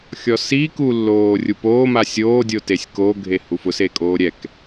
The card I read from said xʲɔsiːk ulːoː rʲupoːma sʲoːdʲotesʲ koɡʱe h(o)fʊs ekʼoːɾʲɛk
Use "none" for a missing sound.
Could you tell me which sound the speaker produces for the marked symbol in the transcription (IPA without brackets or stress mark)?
u